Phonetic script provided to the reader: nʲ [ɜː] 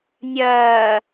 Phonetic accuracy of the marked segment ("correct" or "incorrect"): correct